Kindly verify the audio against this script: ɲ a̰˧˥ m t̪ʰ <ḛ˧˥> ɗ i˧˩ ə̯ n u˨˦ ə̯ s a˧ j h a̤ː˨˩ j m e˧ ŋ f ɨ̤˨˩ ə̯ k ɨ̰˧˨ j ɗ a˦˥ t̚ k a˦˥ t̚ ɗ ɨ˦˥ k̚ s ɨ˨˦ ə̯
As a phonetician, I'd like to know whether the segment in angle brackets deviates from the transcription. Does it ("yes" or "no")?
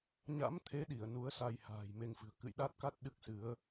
yes